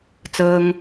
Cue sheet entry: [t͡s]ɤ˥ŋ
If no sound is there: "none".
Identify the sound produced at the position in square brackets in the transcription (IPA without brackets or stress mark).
t͡s